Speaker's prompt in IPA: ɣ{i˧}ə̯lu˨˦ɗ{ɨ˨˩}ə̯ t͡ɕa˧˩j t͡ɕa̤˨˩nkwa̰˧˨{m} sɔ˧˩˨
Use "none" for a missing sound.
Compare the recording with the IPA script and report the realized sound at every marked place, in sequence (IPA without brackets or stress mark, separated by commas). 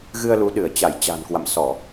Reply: ɨ˧, ɨ˧˩, m